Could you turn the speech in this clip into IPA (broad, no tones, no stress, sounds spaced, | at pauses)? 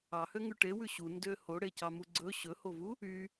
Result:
ɑ h ø ŋ ʉ ʈ e w ʉ ɕ u n d ø h o ɽ e c ɑ m u ɡ͡ǀ ɵ ɕ ɵ h o v u | y